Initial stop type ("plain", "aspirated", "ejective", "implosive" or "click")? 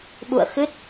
implosive